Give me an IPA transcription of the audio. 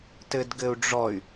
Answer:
t ɘ d ɡ ɘ u̯ ɖ͡ʐ ɔ y̯

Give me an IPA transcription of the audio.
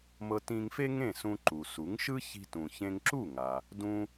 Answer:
m ɤ˧ t ĩ˧ ŋ f e˥ ŋ ẽ˥˩ s ũ˧ ǃ u˩ s u˩˥ ŋ ʃ ɯ˥ ç i̤˧ t ũ˩ ç ẽ˧ ŋ ǁ u˥˩ ŋ a˩ | d ũ˧

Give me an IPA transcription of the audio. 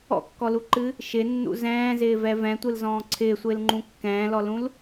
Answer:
ɔ̰ kː ɔ l u ǃ ɨ | ʃ ɪ nː ṵ z ɛ̃ː z ɪː v ɛ v ɛ̃ tʷ ɨ l z ɔ̃ː ǀʰ ɪː sʷ ɪː l ŋ͡ǃ ũ kː ɛ̃ː l ɔ l ũ l

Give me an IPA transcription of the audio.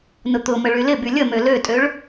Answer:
n ʊ t̪ ʊ m ə ɭ y l ɪ b y lʲ ə m ø l ø tʼ ø ɭ

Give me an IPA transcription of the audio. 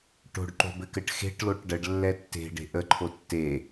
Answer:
ʈ o̤ ɖ ǃ o̤ b ɘ k ɘ ʈ x e̤ ʈ l o ʈ ɖ ə ɖ lː ɛ tː e̤ ɖ e̤ ʔ ə ǃʰ o tː e

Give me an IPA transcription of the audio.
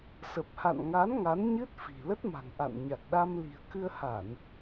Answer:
s ə˨˩ p̚ h a̰˧˨ n ŋ a˨˦ n ŋ a˨˦ n ɲ ɨ˦˥ t̚ f i̤˨˩ l ə˦˥ t̚ m a̤˨˩ ŋ ʔ a̰˧˨ n ɲ a˨˩ k̚ ɗ a˧ m l i̤˨˩ ə̯ k ɨ˧ ə̯ h a˧˩˨ n

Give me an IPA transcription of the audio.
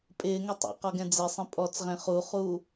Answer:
pʼ ɪː ŋ ɛ tˤ a̰ q ɔ ɡ ɛ̃ d͡z ɪ sˤ ẽ pʼ ɔ t͡s ʁ ẽ χ u χ uː

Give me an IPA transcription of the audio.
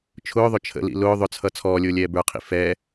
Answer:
t͡ʃʰ ʊː ðˤ ʊ t͡ʃʰ ə̰ l ḭ l ʊː ðˤ ʊ t͡sʰ ʌ t͡sʰ ɔː lʲ ʊː lʲ ɛː b ə˞ qʰ ḭ f ɛ

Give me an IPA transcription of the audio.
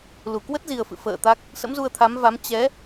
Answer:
l u˧˩ k w ə˦˥ t̚ z i˨˩ ə̯ f ɨ̰˧˨ f ə̰ː˧˨ t̪ a˦˥ k̚ | s ə̰˧˥ m z u˧ ə̯ t̪ʰ a˨˦ m v a˨˦ m t͡ɕ ɛ˨˦

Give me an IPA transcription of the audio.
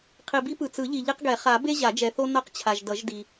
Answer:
qʰ i˨ b i˦ p ɯ˨ t͡s ɯ˨˩˦ ʎ i˨ ʎ i˦ q ɡ ɛ˨˩˦ χ a˨˩˦ b e˦ ʑ a˨˩˦ d͡ʒ ɛ˨ θ o˦ n ʌ˦ q t͡ɕʰ a˨ ʒ d ʌ˨˩˦ ʒ d i˨

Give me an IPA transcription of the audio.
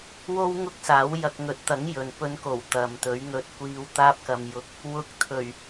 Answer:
w o˥ w ŋ ʊ˥ k̚ s aː˨˥ w j ɐ˧ k̚ ŋ ɵ˨˥ t̚ t̪ ɐ˨˥ ŋ j ɵ˨ n p ɵ˨˧ n k o˨˩ w t̪ ɐ˨ m t̪ ɵ˨˥ ɥ ŋ ɵ˧ t̚ kʷ iː˧ w t̪ aː˥ p̚ k ɐ˧ m j ʊ˧ k̚ | w ʊ˧ k̚ t̪ʰ ɵ˨˩ ɥ

